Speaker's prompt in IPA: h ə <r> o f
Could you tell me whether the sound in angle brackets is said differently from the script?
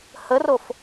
no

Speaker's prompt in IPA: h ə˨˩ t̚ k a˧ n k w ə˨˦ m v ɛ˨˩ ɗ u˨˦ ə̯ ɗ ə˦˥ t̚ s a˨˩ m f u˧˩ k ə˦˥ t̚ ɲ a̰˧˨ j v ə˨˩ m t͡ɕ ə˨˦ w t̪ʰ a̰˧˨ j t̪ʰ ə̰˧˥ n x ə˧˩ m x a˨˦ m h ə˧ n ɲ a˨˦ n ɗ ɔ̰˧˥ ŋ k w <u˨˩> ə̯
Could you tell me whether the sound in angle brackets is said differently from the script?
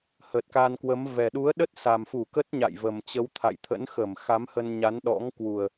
no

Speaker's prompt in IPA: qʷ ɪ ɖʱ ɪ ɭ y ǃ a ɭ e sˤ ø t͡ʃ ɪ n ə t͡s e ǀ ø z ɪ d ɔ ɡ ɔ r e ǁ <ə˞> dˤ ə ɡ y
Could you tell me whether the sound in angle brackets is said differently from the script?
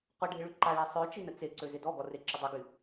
yes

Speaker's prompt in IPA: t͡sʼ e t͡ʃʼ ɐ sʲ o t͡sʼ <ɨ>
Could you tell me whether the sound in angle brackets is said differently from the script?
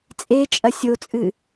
no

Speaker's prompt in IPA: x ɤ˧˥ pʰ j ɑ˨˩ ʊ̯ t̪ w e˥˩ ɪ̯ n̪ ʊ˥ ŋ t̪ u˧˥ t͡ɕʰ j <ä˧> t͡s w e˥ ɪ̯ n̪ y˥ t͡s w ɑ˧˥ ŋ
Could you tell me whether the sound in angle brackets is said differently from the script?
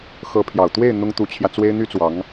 no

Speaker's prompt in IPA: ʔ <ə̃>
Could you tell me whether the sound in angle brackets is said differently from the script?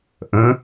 no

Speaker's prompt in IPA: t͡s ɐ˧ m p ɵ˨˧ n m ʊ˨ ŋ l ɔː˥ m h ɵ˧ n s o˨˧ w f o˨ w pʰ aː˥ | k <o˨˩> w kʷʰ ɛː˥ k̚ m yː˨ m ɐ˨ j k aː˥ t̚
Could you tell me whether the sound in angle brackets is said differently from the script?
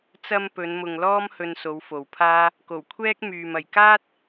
no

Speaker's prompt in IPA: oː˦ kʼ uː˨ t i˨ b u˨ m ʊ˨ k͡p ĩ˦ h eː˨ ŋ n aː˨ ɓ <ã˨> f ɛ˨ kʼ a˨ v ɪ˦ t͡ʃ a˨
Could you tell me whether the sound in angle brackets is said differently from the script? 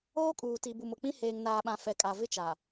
no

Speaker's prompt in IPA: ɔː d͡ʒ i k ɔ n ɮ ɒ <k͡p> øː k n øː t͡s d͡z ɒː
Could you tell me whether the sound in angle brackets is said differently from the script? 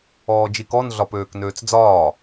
yes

